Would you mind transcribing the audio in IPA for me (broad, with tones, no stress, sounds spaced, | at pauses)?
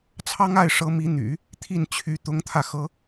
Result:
t͡sʰ ɑ˥ ŋ a˥˩ ɪ̯ ʂ ɤ˧˥ m i˧˥ n̪ y̰˨˩˦ | t̪ʰ i˥˩ n t͡ɕʰ y˧˥ t̪ ʊ˧˥ ŋ t̪ʰ ä˧ x ɤ˧˥